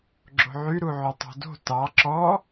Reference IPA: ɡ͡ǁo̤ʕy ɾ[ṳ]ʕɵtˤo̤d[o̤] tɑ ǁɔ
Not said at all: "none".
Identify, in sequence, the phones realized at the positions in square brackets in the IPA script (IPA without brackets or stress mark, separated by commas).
u, o̤